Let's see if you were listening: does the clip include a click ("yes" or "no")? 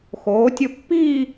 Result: no